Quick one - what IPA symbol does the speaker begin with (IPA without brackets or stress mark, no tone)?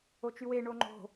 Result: o